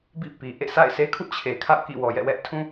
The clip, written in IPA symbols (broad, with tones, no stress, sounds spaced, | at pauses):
b ḭ˦˨ p i˨ ʔ ḛ˦˨ sʰ a̰˦˨ ɪ̯ s e˦ kʰ ṵ˦˨ t͡ɕʰ e˨ kʰ a̰˦˨ ʊ̯ k ḭ˦˨ w ɔ˨ j ɛ̰˦˨ w ɛ˦ ʔ tʰ ũ˦